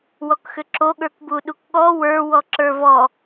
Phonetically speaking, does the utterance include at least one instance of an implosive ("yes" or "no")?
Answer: yes